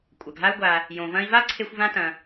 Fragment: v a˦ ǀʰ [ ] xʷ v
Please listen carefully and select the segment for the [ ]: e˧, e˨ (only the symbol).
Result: e˧